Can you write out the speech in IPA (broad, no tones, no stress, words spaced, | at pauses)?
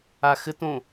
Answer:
axɘtõ